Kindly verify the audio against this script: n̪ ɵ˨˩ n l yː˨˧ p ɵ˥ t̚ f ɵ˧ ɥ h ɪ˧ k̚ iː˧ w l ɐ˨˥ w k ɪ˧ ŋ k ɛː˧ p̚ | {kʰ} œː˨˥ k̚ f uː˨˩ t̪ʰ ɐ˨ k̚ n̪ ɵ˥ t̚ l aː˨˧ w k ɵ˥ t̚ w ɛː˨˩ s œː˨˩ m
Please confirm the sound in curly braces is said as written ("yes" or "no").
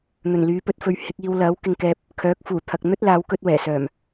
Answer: yes